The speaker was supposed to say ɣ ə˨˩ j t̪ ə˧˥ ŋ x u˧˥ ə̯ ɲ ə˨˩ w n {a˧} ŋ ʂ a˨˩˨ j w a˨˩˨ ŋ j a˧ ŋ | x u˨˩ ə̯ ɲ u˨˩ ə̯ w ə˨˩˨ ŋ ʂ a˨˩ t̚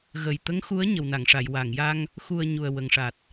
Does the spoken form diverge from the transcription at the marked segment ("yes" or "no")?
yes